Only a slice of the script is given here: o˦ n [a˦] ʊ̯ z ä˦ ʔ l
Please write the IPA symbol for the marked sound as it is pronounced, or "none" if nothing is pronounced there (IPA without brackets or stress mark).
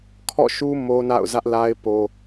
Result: a̰˦˨